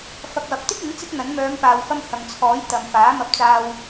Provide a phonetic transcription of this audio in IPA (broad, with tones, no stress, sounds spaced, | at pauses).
f ɐ˨ k̚ w ɐ˨ p̚ t̪ ɪ˥ k̚ ɪ˨˥ ŋ t͡s ɪ˥ k̚ n̪ ɐ˨˥ n m œː˨˧ m p aː˨ w f ɐ˧ m h ɐ˨ ŋ t͡sʰ ɔː˨˥ j t̪ ɐ˨ m f aː˨˥ m ɐ˧ p̚ t͡s aː˧ w